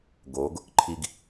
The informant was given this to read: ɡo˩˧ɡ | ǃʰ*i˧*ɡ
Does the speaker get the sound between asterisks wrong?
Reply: no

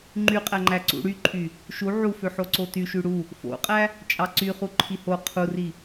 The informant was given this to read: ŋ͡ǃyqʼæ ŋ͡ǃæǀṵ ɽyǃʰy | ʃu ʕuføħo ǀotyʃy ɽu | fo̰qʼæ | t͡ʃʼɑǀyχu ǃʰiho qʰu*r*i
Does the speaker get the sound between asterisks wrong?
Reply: no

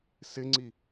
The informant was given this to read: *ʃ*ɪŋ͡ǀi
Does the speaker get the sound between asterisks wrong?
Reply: yes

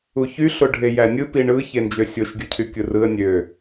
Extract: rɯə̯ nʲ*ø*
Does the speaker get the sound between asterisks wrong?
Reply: no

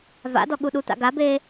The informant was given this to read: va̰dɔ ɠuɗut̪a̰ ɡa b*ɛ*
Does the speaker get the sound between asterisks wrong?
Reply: yes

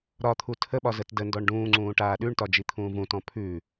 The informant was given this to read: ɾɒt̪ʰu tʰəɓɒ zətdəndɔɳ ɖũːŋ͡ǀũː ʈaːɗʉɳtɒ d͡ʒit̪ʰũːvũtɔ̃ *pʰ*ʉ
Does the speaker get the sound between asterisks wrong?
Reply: no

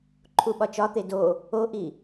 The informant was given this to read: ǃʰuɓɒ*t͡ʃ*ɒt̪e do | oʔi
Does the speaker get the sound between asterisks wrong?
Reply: no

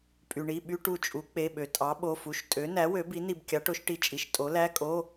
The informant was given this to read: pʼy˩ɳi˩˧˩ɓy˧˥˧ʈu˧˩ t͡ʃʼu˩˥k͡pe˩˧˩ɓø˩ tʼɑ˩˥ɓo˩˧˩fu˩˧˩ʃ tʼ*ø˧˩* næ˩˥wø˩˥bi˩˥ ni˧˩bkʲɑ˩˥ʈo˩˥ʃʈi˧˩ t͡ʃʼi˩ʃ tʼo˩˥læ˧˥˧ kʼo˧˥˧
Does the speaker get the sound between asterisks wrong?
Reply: yes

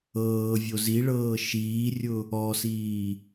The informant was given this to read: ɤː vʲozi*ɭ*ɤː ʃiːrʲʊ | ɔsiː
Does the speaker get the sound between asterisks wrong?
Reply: no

